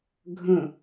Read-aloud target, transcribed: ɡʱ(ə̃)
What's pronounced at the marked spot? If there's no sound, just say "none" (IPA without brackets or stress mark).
ə̃